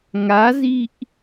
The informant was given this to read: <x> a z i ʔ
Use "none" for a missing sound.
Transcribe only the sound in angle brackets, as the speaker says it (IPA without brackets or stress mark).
ŋ